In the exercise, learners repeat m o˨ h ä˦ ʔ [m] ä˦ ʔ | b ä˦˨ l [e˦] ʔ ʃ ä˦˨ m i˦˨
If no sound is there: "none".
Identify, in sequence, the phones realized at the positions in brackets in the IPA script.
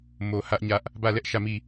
ɲ, ɛ˦

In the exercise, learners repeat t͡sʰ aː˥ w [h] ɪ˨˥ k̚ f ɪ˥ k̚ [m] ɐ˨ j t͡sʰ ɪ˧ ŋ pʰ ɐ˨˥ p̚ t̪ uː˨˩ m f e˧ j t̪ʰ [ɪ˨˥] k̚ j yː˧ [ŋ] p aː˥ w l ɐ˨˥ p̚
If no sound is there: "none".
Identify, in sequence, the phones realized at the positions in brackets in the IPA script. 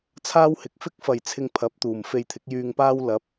h, f, ɪ˨˥, ŋ

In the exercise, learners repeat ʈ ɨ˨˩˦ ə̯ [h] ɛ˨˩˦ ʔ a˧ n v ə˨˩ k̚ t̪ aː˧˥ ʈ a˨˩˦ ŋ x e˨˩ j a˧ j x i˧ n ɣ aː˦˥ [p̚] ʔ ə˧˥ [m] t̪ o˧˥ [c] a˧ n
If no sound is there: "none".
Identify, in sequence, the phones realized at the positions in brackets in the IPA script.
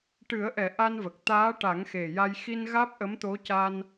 ʔ, p̚, m, c

